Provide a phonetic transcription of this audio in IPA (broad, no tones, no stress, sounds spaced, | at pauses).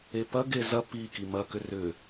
e p ɐ ɡ e z ɐ p i k i m ɐ k ʏ r ʏ